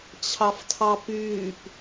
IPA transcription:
t͡ɕʰ ɑ f tʰ ɑ p yː p

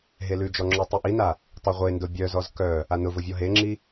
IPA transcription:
ɦ e l ʉ d͡ʒ ɔ ŋ͡ǁ ʊ tˤ i ʔ i n a | tˤ e ʁʷ e n d ʊ bʲ œ z ɔ z k œ | a n ʊ v ʊ vʲ ɔ ɦ e ŋ͡ǁ i

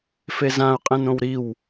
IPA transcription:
f e z ã ʊ̯ qʼ ɛ̃ n õ w ɾ i w

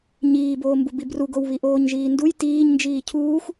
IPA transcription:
ɲ iː b oː m b u b i b r u ɡ o w β i ʔ oː ɲ ʒ iː n d u j t iː ɲ n d͡ʒ iː cʰ uː xʷ

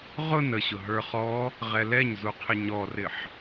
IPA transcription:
ʁ ʊ n ə ɕ ʊ ɦ ə˞ χ ɔ | ʁ ɛ l ɛ ɲ z u qʰ ɪ ɲ ɔ r ɪ ħ

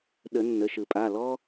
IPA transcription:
ɗ ə˨˩˦ nː ə˩˧˩ ʃ ɯ˨˩˦ pʼ a˩˧˩ l ɔ˥

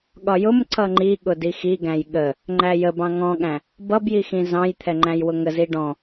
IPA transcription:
ɠ ɒ j ʊ m ǀ ʌ ŋ͡ǃ i ɠ ʊ d i x i ɡ æ̃ j ɠ ə | ŋ͡ǃ æ j ə b ɑ̃ ŋ ɔ̃ ɠ æ̃ | b ʌ b j i x ĩ z ɑ̃ j t̪ʰ ɛ ŋ͡ǃ æ̃ j w ʊ ŋ ə z i ɖ ɔ̃

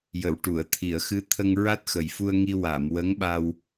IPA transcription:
j ə˨˩˨ w ʈ u˨˩˨ ə̯ t̪ʰ i˨˩˨ ə̯ x ɨ˧˥ t̪ʰ ə˧ ŋ ɹ a˦˥ t̚ x ə˨˩ j f u˧ ə̯ ŋ i˧ w a˨˩˨ m w ə˧˥ ŋ ɓ a˧ w

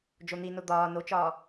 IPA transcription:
d͡ʒ o n̪ i n o d̪ ɒː n o t͡ʃ ɒː

